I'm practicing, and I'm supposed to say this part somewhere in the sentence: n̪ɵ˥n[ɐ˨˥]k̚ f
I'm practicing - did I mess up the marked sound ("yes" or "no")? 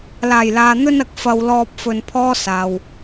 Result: yes